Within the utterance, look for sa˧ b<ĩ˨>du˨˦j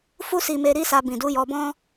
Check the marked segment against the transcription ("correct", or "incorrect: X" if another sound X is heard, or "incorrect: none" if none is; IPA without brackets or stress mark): correct